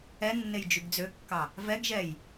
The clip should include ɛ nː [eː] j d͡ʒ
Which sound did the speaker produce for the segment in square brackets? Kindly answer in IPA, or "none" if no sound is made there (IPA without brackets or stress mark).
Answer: e